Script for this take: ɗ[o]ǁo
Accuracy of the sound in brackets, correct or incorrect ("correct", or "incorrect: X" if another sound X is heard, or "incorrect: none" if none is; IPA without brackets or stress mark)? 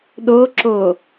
correct